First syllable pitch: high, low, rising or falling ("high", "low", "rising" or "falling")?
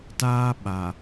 high